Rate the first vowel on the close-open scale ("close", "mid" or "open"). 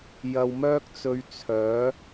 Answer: open